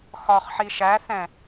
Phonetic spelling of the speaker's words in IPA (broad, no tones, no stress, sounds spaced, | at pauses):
x ɒ χ ħ i ʃ æ θ ɛ̃